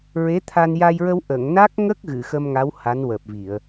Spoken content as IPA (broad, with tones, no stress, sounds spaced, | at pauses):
ɹ e˧˥ t̪ʰ a˧ n j a˧ j ɹ ə˧ w ʔ ə˨˩˨ ŋ n a˦˥ k̚ ŋ ə˦˥ k̚ ɣ ɨ˨˩˨ x ə˧ m ŋ a˧˥ w h a˧˥ n w əː˨˩ p̚ v i˨˩˨ ə̯